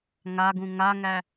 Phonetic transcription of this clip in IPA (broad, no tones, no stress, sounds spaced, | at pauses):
ŋ a ɡ ũ ŋ a ŋ æ